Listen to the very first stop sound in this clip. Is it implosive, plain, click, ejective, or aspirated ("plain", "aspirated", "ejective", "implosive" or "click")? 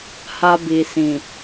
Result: plain